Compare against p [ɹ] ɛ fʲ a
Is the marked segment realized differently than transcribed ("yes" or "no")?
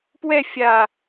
yes